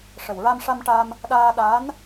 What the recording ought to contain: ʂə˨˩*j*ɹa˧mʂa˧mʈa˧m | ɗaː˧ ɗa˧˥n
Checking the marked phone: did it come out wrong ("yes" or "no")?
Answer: yes